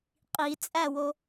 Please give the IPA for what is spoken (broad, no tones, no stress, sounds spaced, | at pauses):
qʼ i t͡sʼ æ w o